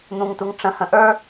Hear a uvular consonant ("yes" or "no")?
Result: no